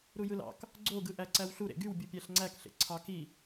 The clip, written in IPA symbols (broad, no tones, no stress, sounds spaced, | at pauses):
ɾ u j ɯ l ɑ̰ k | ɡ͡ǀ o ɡ ɯ ʔ æ ǀ æ w ɬ u ɾ ḛ ɡ y w bʲ u pʲ æ ɬ ŋ͡ǀ æ k ɬ ḛ ǀʰ ɑ k i